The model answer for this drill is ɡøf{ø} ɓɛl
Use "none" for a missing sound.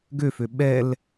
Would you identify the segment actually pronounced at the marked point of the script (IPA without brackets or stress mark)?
ø